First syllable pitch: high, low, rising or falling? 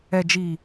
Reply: low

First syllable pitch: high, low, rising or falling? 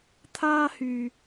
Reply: high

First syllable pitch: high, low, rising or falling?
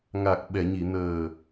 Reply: low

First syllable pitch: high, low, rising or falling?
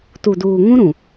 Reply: low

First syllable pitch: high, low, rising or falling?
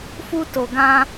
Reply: high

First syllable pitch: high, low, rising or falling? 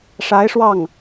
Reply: rising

